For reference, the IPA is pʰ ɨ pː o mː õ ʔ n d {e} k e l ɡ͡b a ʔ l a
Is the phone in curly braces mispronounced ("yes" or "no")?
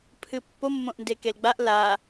no